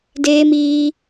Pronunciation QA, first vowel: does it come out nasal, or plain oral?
oral